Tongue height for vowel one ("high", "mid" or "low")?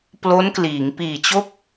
mid